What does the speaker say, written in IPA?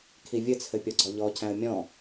kʰ i vʲ ɘ t͡sʰ ɘ pʲ ɔ ɡ͡ǀ ɔ ʎ ɔ cʰ æ̃ ə̯ mʲ ɔ̃

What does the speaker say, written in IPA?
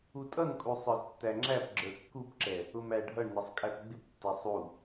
u tʼ ʌ n kʼ u sˤ ə˞ z tː æ ŋ͡ǁ æ p ɡ͡ǁ ə˞ kː u p ǁ ɛ | ʊ m æ ɖʱ ʌ ɳ n ʌ sˤ kʼ æ p ɡ͡b ɪ p tː ɛ sˤ u

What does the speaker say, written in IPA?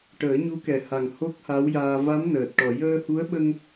ʈ əː˨˩˦ ɲ u˧˥ k ɛ˨˩ h a˨˩ ŋ h o˦˥ k̚ h a˧˥ w j aː˧ v a˧˥ m n əː˨˩ t̚ ʈ ɔ˨˩˨ j əː˧ h u˧˥ ə̯ ɓ ə˧ ŋ

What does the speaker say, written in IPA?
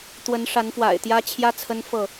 t̪ w ə˨˦ n ʂ a˨˦ n f w a̰˨˩ ɪ̯ t̪ j ä˦ t͡ɕʰ j ä˦ t͡sʰ ə˦ n f ɤ˥˨

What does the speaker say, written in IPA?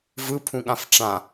v ɯ pʰ ũ ɠ ã f ʈ͡ʂ ã

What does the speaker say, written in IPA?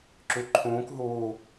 ǁ y ǃʰ ũː k ɦ uː

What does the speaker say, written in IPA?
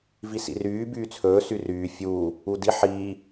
v i s ḭ r yː b yː t͡sʰ ɵː s y r yː fʲ uː | u d i ħ iː

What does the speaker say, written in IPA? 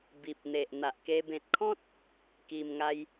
b i˨ p̚ n̪ e˨ ʔ n̪ a˨ ʔ k e˧ b ẽ˨ t̚ kʰ ɔ̃˦ t̚ | k i˧ m ŋ a˦ j

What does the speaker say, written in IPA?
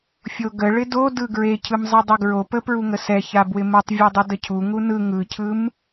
fʲ o ɡ ə ɭ ɪ d o d ɯ ɡ ɹ e cʰ ɯ m zˤ ɯ dˤ ə ɡ ɹ o p ə p ɹ u ŋ ə s ɛ ç a b w ɪ m u tˤ vʲ u dˤ ɯ d ə cʰ u ŋ u n ɯ ŋ ɯ cʰ ɯ m

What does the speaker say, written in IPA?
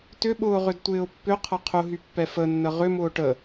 t ʏ ɓ ʊː ʁ ʏ d tʷ ɪː ʊ̯ pː ʏ qʰ ɐ qʰ ʊ ɦ y pː ɛ f ə nː ə ʁ ʏ m ʊː ʈ ə

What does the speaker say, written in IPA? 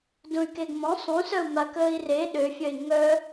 d ũ y̯ k e ɡ m ɔ̃ sˤ ũ s œ u̯ m a k əː i̯ r e ɗ ø fʲ œ i̯ ŋ œ

